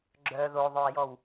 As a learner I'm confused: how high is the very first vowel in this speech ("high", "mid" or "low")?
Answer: mid